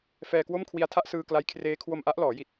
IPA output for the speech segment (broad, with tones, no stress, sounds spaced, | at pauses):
f ɛː˧ k w o˥˩ m kʰ w i˧ a̯ tʰ a˥˩ ʔ s ɯː˧ k l a˦˥ j kʰ r eː˦˥ kʰ w o˧ m ʔ a˦˥ ʔ l ɔː˩˦ j i˨˩ t̚